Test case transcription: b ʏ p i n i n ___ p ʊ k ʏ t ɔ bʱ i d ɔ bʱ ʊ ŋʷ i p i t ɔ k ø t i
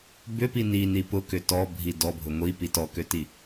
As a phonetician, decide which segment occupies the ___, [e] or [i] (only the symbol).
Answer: i